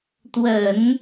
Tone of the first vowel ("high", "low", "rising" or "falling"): low